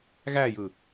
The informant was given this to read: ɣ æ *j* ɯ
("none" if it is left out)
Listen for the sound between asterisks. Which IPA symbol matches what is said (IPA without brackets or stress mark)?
j